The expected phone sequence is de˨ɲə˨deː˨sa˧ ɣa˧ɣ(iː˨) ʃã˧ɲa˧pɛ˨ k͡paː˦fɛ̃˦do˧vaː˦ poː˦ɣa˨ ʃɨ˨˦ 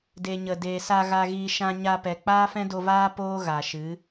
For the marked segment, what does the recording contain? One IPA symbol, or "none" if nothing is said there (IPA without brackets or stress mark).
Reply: iː˧